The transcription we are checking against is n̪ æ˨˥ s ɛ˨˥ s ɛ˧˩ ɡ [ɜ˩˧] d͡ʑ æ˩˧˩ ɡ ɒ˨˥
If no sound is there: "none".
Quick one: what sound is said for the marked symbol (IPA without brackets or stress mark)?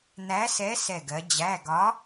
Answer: ɜ˩˧